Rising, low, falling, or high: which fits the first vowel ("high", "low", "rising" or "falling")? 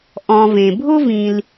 low